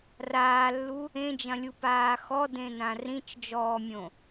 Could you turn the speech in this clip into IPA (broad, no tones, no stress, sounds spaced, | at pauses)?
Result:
r aː lː u | ẽ d͡ʒ ɐ̃ lʲ u p aː x ɔ d ẽ n ã r ĩ t͡ʃ d͡ʒ ɔː mʲ õ